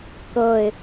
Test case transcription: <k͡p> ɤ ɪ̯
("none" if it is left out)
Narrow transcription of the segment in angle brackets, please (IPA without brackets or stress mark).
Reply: k